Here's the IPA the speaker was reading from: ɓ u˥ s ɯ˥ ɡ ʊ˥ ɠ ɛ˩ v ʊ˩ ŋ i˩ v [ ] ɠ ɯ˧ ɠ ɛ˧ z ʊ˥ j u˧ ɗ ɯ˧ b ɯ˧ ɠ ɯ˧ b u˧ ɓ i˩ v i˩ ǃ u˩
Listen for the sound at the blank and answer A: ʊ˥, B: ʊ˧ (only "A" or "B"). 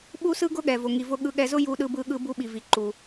B